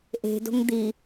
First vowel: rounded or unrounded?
unrounded